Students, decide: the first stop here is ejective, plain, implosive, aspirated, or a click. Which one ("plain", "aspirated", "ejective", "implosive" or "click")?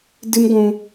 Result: plain